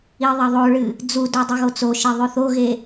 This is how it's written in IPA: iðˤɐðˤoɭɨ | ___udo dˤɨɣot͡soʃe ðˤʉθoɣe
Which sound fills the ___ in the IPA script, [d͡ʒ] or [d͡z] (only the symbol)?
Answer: d͡z